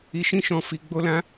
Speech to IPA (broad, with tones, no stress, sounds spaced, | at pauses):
i˧ ʃ ĩ˦ ʃ ɔ̃˧ f i˧ ɡ͡b o˦ l ã˦